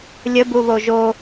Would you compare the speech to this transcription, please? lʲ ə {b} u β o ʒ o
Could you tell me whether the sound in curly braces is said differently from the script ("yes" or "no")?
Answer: no